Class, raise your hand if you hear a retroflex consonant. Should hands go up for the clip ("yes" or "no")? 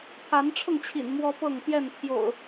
yes